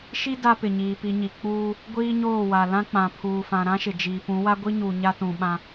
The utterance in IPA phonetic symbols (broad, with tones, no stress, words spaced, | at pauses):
ʃi˦ da˦pɪ˨ ɲiː˨pi˨ɲi˨ k͡puː˦ | ɡʷiː˦ɲoː˦˨wa˨lã˦ k͡pã˨pʰuː˨fã˨ ɾã˦ʃɪ˨d͡ʒiː˨pũ˨˦ wa˦ɡʷi˦ɲuː˨ ɲa˦tũ˨ɓã˦